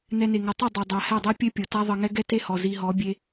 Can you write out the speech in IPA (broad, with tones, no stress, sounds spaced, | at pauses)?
n ɛ˧ n e˨ ŋ ɤ˨ tˤ i˦˨ dˤ ɛ˨ dˤ a˨ h ɛ˦˨ dˤ ɛ˦ pʲ ɘ˦ pʲ ɤ˨ t a˦ ðˤ ɤ˧ ŋ ɛ˦ ɡ ɛ˦ t e˦ h ɔ˨ z i˧ ɦ ɔ˨˦ bʲ e˦